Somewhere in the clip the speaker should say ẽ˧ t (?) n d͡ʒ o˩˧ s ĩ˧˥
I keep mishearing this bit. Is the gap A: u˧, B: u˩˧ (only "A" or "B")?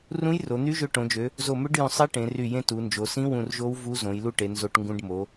B